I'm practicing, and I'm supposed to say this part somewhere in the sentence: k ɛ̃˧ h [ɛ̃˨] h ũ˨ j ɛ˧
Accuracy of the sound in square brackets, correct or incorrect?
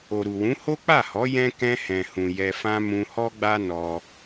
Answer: correct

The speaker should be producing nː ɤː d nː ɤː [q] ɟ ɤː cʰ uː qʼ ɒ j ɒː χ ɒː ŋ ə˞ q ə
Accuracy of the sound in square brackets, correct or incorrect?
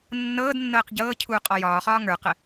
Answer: correct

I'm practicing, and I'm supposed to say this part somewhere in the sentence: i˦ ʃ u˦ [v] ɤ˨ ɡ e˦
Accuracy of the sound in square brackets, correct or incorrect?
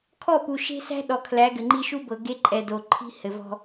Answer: incorrect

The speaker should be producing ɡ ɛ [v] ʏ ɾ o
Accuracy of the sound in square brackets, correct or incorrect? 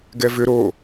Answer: correct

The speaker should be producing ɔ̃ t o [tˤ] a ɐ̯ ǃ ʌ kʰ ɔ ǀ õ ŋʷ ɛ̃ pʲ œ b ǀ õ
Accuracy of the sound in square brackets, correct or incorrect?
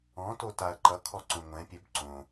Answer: incorrect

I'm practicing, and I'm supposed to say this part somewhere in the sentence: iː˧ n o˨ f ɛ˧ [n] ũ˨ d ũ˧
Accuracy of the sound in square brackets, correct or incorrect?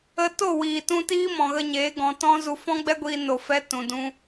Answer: incorrect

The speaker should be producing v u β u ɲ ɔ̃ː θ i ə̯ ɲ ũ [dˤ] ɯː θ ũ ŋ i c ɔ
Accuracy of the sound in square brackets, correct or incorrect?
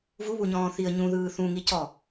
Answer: incorrect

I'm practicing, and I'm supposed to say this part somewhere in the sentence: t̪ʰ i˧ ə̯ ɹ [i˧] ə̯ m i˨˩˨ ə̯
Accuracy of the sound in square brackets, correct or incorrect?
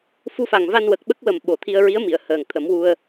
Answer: incorrect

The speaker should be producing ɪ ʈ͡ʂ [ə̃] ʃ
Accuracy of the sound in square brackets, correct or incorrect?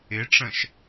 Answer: correct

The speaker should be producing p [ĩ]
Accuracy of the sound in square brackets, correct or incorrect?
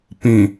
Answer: correct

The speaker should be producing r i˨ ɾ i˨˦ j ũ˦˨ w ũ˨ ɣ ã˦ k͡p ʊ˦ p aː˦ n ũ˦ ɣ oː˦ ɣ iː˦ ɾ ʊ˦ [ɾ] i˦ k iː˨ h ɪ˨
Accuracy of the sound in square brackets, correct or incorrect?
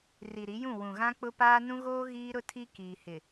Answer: incorrect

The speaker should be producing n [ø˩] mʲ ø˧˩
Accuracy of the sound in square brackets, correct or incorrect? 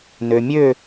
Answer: correct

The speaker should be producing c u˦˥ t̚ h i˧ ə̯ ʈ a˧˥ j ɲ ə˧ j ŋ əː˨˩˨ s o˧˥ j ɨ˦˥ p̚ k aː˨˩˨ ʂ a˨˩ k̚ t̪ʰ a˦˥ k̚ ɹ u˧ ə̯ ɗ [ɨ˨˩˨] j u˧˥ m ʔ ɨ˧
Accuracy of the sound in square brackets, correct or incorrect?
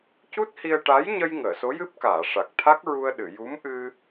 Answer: correct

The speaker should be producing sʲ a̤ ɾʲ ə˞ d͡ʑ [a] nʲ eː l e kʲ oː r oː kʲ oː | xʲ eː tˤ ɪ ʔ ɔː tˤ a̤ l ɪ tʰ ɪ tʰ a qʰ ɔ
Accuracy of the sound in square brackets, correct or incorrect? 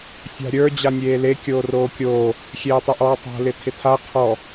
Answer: correct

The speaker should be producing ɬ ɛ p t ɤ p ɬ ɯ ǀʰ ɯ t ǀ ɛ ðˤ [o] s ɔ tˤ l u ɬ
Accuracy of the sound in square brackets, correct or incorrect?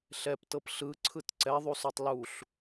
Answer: incorrect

